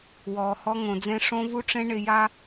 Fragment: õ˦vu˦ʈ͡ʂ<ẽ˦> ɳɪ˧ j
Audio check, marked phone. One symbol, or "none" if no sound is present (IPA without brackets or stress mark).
ẽ˦